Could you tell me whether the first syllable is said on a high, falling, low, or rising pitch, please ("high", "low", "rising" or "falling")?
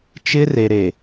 high